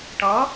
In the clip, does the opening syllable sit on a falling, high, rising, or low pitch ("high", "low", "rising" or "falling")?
rising